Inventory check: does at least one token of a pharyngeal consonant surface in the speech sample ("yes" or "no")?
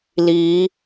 no